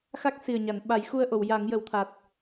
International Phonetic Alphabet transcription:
xa˦˥k̚si˨˩ə̯ɲa˨˩˨n ɓa˨˩˦jxu˧ə̯ ʔo˨˩˨wja˨˩˦ŋjə˨˩˦wt̪ʰa˨˩t̚

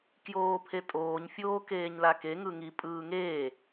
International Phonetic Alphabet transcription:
kjoːpʰetʼoːɲ fʲoːkeːɲlake ŋɯŋi pʼɯːŋeː

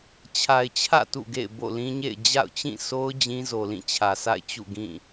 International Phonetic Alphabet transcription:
t͡ɕʰa˨ɪ̯t͡ɕʰä̰˦˨ tṵ˦˨ ɡḛ˦˨ɪ̯bo̰˦˨lĩ˦ɲḛ˦˨ɪ̯ d͡ʑa̰˦˨ʊ̯t͡ɕĩ˦˨so˦ʊ̯ d͡ʑĩ˦zo˨lĩ˦˨ t͡ɕʰä˨sʰa̰˦˨ɪ̯ t͡ɕṵ˦˨ɡĩ˦˨

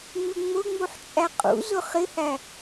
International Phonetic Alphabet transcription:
ŋ͡mɪŋ͡mʊŋ͡muħ t͡ʃʼæqʼṵzʊ χɪhæ

